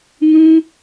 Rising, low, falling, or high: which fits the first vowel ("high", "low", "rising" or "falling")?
high